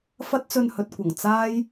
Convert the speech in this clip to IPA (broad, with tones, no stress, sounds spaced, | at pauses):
f ɐ˥ t̚ t͡s ɵ˧ n h ɵ˨ t̚ kʷ ɐ˨˩ ŋ t͡s aː˥ j